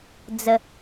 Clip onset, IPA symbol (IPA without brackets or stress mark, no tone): d͡z